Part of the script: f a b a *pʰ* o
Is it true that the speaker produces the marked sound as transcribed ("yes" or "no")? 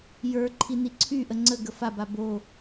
no